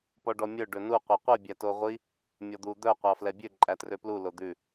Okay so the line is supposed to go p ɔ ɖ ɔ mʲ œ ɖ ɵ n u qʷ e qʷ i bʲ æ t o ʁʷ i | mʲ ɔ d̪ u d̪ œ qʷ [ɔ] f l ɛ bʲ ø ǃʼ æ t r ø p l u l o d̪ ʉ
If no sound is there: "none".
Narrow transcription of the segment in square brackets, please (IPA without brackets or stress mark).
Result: ɑ